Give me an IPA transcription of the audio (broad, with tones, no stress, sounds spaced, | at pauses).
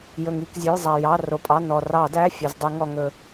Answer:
j ɵ˩ ŋ i˩˧˩ k zʲ ɵ˩˧˩ j zˤ æ˩ j ɑ˩˧˩ r o˩ pʼ ɑ˩˧˩ n ɔ˩ r ɑ˧˩˧ d æ˩˧˩ fʲ ɘ˩ z dˤ i˧˩˧ ŋ ɔ˩ ŋ ɵ˧˩˧